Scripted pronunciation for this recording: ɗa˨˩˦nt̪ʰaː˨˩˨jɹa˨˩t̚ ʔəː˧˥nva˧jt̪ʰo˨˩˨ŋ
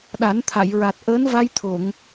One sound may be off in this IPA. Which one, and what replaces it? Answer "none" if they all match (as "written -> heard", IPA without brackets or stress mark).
aː˨˩˨ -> a˨˩˨